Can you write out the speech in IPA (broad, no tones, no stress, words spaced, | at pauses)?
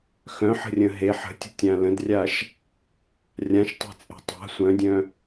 xœ̃ħə̤rʲə̃ ɦeħ ə̤tʲə̤tʲã lə̃drʲaʃ | rʲãʃtˤe̤t͡sʼe̤ tˤa̤ sʷœ̃dʲœ̃